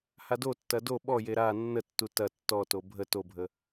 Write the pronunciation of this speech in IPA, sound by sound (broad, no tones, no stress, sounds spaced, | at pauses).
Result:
h a d o tː ɐ d o ɓ ɔ j e ɾ a nː ə tː u t ɐ tː ɔ t o bʱ ə t o bʱ ə